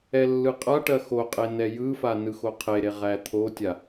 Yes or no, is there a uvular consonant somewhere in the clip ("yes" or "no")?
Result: yes